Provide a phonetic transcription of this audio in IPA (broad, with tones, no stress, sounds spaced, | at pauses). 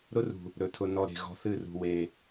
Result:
ɾ ʊ˦ r ṳ˨ | ɾ ɵ˨ tʰ ʊ˨ n ɔ˨ ɾ e̤˨ ɣ ɔ̤˧ θ ɨ˦˨ r ṳ˨ w e˨